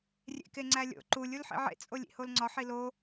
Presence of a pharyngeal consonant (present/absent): present